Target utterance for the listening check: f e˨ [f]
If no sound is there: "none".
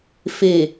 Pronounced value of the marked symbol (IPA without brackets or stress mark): none